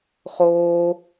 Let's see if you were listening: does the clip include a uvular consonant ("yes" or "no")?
yes